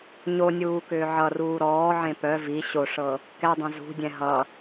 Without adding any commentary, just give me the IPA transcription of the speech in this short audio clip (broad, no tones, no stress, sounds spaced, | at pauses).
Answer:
ɲ o nʲ uː k ʏː ʕ ʌ r uː ɾ ɔː ʕ ẽ p œ v i ɕ o ʂ ɤ | k ɛ dˤ ɛ̃ z ṳ dʲ ɛ̃ ɦ ʌ